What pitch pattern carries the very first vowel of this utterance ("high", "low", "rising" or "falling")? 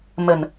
low